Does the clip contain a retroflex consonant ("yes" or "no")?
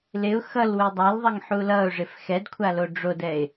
yes